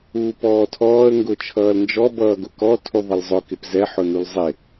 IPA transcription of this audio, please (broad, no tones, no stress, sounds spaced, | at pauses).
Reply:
uː p ɔː tʰ ɔː ə̯ ŋ ɡ ʊ t͡ʃʰ ʌː l n d͡ʒ ɔ b ʌː ɡ ʊ k ɔ tʰ u ðˤ ɪ l zˤ ʊ k ɪ p z ɛ ħ ʊ n u l zˤ ɪ